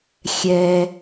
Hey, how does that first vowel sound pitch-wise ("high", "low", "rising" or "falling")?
high